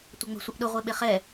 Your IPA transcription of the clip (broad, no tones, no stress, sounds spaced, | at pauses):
tʷ ɐ ŋ͡m ə̤ sʷ ə ʔ ɗ ʊ ʁʷ e ɓ e χ ɛ